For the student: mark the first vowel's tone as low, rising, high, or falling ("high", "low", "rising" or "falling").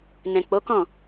low